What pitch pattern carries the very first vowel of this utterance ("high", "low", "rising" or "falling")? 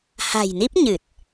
low